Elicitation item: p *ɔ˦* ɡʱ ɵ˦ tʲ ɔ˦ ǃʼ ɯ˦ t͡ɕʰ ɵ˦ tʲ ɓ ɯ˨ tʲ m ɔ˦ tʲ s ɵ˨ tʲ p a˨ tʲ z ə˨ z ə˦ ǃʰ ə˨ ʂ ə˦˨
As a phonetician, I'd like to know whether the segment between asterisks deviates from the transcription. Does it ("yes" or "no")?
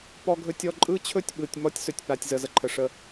no